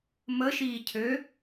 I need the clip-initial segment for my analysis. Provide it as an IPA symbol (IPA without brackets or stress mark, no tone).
m